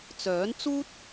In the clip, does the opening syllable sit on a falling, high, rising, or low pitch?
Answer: rising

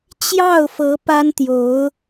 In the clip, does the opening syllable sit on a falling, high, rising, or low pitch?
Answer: falling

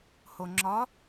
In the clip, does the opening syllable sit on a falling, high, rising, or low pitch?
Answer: low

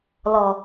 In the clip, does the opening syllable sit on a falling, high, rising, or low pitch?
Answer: low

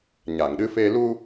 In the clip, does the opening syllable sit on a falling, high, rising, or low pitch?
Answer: low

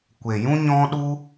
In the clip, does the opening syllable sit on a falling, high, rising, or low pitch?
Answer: low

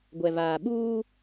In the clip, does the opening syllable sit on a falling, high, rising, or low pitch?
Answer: low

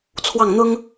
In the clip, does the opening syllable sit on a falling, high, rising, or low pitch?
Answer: falling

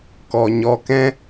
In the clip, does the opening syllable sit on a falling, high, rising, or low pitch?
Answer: low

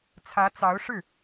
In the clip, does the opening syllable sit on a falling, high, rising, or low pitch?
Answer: rising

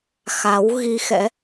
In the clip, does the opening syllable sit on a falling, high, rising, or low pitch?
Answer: rising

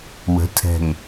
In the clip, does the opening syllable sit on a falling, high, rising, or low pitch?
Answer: rising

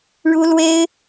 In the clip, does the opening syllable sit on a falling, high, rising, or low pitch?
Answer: high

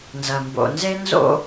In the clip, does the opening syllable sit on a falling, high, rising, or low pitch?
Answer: low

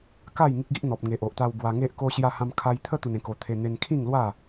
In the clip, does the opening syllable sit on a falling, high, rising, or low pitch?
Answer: falling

